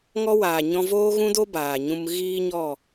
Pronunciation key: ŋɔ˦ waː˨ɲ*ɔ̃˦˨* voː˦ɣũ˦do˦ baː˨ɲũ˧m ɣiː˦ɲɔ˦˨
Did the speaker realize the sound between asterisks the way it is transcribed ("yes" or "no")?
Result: no